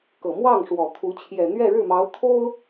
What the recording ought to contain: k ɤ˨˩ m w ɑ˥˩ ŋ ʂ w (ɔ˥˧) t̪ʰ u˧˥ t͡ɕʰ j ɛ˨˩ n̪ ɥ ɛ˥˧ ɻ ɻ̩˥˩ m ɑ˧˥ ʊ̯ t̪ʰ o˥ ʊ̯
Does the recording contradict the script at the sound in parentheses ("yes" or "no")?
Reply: yes